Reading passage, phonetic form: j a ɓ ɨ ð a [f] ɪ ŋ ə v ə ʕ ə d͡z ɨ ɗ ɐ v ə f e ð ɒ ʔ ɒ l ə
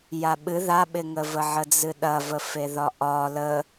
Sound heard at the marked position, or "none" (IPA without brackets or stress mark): ɓ